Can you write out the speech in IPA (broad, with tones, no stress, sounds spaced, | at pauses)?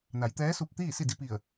n a˩˧ j t̪ ɛː˧˥ s u˧ p̚ t̪ iː˥˨ s i˥˨ d i˧ p i˧˩ ə̯